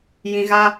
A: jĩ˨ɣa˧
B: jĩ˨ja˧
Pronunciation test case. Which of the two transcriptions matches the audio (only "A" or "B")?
A